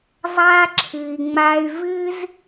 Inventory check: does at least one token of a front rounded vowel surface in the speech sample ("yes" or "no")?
yes